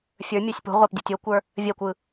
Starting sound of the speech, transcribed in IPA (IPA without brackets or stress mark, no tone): fʲ